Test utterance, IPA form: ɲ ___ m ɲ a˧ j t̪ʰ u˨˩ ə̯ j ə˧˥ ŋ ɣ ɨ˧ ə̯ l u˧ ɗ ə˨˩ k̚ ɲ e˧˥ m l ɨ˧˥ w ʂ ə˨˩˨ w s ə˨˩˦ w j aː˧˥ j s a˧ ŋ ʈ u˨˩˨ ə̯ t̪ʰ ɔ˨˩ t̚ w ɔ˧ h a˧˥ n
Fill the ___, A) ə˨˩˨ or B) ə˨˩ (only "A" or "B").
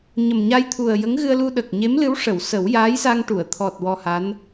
B